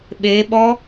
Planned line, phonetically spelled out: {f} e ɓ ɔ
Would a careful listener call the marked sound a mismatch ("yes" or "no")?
yes